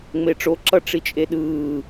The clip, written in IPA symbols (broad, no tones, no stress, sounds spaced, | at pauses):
ŋ͡m e ʈ͡ʂ o ǁ ʌ ʈ͡ʂ i t͡ʃʼ e ɗ ɯː